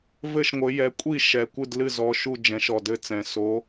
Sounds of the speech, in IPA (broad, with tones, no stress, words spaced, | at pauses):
vɘ˥˩ʃŋʷɘ˨˦ jɛ˨˦kʷʼi˥˩ʃɛ˨˩ kʷɨ˥˩dlɨ˥˩zɔ˨˦ʃu˥˩ d͡ʒɛ̃˨˦ʃɔ˨˩dɘ˥˩t͡sɛ̃˨˩ so˨˦